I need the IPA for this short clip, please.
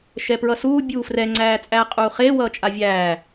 ʃɛpɹʌsuː bʲuːfrɛ ŋ͡ǀæːt͡sʼæːqʼuːχeː wʌːt͡ʃʼavʲæː

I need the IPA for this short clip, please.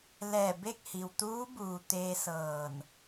lɛː˧˩be˥˨k̚ hi˩wt̪uː˧˥buː˩ t̪eː˧sɤː˧˩n

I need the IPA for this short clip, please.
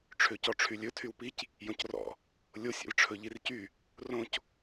ʈ͡ʂʰøcɔʈ͡ʂʰylʲɵ tʰywpic | jõcrɔ̰ | lʲosʲ ɛ̰lʈ͡ʂʰɵʎircy | rõc

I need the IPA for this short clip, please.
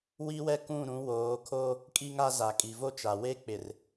wi˦wɛ˦kũ˦˨ ɾũ˨˦woː˨˦kʰo˦ | kʼi˦ŋa˦ za˨kʼi˨vo˦t͡ʃa˨ we˦k͡pɪ˨r

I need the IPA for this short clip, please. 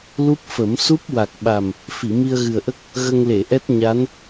lu˦˥p̚fə˨˩˦m su˦˥p̚wa˨˩k̚ɓa˨˩m | fi˨˩˨mi˧ə̯ɣɨ˨˩ə̯ʔə˦˥k̚ | ɣə˧ŋle˨˩˨ʔɛ˦˥t̚ ɲa˧˥n

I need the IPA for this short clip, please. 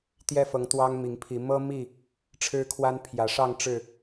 t̪jɛ˦fɤ˨˦ŋ t̪wɑ˦ŋmi˨˦ŋpʰi˨˦ mɤ˦mi˥˨ | ʈ͡ʂʰɻ̩˦kʰwa˦n pʰjä˨˩ʂɑ˥˨ŋ ʈ͡ʂɻ̩˥˨

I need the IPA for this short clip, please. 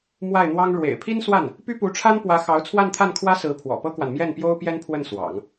mwa˥˩ɪ̯n̪wɑ˥ŋ ɻwḛ˨˩ɪ̯pʰi˥nswa˥˩n | py˥pu˧˥ʈ͡ʂʰa˥n pwä˧˥ xɑ˧˥ʊ̯t͡sʰwa˥˧nt̪ʰa˥˩nkʰwä˥ sɹ̩˧˥ pʰwɔ̰˨˩pɤ˥kwa˨n mjɛ˥˩npjo˥ʊ̯ pjɛ˥npʰwə˥˩n swɑ̰˨˩˦ŋ

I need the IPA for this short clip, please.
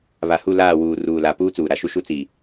βa˨hu˦˨ laː˦˨wuː˨ ruː˨la˨ puː˦t͡suː˨ɾa˨ʃu˦ ʃu˦t͡si˨

